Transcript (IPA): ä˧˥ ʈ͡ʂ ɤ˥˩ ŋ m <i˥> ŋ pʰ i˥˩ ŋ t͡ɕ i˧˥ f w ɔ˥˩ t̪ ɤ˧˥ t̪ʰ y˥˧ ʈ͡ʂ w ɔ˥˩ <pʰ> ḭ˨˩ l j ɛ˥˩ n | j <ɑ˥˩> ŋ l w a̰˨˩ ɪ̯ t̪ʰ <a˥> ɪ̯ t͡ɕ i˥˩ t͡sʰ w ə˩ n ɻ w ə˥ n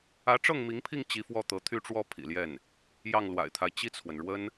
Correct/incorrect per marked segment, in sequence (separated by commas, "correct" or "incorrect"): incorrect, correct, correct, incorrect